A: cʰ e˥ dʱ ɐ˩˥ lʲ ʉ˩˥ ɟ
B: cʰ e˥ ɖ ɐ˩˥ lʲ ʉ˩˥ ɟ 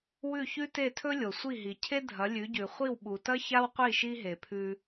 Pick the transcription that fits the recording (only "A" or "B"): A